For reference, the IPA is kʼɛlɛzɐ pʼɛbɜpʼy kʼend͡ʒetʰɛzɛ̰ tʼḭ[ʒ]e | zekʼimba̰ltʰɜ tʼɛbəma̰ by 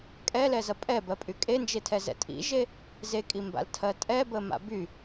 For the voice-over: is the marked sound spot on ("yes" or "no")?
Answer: yes